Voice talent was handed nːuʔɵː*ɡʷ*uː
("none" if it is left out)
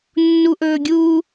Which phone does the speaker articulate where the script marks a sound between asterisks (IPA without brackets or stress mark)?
ɡʲ